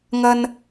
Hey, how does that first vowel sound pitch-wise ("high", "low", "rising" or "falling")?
high